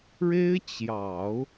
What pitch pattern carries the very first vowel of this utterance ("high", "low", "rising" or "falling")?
high